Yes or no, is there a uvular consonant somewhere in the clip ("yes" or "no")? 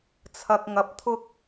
no